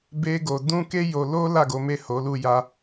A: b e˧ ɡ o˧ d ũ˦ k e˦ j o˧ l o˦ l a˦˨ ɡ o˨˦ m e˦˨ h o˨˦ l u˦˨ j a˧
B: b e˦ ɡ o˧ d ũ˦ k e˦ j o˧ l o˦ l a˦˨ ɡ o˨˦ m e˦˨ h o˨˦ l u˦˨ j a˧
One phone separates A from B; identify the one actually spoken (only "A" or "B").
B